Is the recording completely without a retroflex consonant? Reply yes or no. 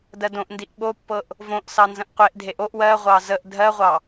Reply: yes